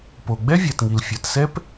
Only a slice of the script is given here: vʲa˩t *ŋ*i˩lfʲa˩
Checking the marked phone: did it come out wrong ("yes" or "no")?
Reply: no